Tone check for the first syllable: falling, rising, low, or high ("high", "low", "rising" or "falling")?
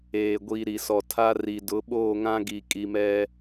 low